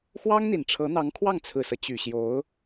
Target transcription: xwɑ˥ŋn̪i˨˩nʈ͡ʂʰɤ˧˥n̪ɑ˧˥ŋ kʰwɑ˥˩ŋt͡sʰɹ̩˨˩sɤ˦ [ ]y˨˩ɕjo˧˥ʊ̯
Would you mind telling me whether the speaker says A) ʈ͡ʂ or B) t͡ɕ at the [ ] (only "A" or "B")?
B